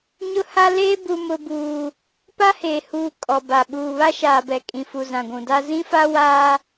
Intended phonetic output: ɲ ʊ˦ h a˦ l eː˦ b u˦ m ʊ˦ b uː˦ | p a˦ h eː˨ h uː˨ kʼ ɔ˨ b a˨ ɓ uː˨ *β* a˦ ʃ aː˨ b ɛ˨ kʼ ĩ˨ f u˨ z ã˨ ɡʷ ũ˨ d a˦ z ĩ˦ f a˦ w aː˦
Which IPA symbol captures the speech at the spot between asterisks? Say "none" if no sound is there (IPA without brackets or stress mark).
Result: β